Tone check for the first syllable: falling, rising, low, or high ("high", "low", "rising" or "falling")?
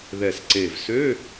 low